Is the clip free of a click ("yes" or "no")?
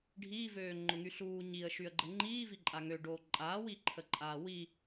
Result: no